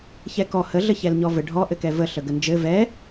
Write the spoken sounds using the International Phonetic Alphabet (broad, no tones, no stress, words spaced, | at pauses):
çɛkɔ həɮə çɛlɲɔvɘ ɖʱɔ ʔɘkɛvəɬə ɡənd͡ʒɘ vɛ